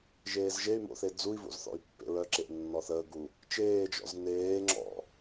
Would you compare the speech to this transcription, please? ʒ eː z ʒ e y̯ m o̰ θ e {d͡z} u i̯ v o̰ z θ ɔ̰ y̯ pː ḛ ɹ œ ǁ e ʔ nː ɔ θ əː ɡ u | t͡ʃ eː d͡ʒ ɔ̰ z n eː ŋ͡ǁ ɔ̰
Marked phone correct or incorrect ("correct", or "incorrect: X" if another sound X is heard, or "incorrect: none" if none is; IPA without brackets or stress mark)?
correct